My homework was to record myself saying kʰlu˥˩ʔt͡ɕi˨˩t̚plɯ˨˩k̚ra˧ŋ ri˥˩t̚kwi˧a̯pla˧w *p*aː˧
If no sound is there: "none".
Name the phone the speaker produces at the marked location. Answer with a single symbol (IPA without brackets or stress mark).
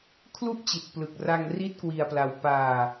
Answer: p